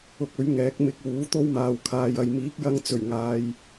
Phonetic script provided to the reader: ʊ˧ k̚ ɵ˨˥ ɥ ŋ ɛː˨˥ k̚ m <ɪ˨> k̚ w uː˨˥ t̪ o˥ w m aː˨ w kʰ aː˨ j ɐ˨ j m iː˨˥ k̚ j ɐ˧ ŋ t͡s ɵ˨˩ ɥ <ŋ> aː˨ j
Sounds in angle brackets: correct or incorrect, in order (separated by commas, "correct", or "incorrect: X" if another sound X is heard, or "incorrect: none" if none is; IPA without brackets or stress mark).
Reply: correct, correct